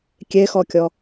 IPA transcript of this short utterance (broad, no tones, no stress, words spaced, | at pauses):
kʲexɔkʲɔ